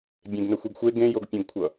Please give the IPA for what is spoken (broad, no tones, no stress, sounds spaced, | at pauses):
bʲ ẽ ɡ n ə xʷ i ɡ xʷ e ɡ ẽ j o ɡ pʲ õ ɡ kʷʰ ʌ